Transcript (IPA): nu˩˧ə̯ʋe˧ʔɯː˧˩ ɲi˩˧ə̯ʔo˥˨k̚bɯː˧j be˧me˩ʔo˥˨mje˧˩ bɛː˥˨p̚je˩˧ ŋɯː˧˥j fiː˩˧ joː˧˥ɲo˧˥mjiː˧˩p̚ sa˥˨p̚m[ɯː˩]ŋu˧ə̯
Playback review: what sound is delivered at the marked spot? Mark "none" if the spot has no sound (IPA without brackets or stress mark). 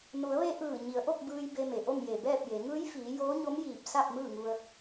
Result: ɯː˥˨